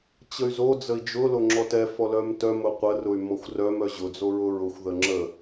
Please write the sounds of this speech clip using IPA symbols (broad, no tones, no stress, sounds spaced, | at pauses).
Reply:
t͡ɕ ə y̯ z o d͡z ə i̯ d͡ʒ ʊ l o ŋ͡ǁ ɔ t ɛ f ɔ l œ m t œ m ʊ qʷ ə r ʊ y̯ m ɔ xʷ r œ m œ ʑ ʊ d͡z o ɹ ʊ ɹ ʊ xʷ ð ə ŋ͡ǁ ə